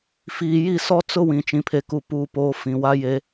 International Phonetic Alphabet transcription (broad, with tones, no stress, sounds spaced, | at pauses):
f iː˨ j i˦˨ s ɔ˦ t͡s ʊ˦ w ĩ˨ t͡ʃ ĩ˨ pʰ e˨ k u˨ p uː˨ p oː˨ f ĩ˨ w a˦ j e˦